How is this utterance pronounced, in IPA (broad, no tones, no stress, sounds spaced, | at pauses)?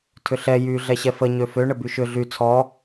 tʰ ʏ ɬ ɛ j y ɮ ɛ ɕ ɛ f ə ɲ ø f ø ɳ ə b y ʃ ʏ ɮ y t͡sʰ ɔ